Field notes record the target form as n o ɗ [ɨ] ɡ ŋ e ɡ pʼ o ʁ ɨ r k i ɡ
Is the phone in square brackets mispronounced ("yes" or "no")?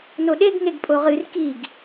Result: yes